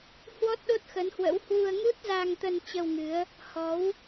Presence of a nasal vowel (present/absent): absent